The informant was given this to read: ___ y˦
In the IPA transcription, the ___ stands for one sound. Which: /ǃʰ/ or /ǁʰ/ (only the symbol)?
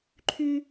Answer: ǃʰ